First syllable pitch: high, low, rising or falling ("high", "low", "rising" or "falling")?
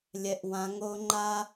high